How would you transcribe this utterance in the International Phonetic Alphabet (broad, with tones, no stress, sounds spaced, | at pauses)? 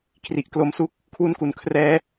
kʰ r i˨˩ ʔ k l o˦˥ m s u˥˩ k̚ | kʰ w u˧ n k u˩˦ n kʰ r ɛː˦˥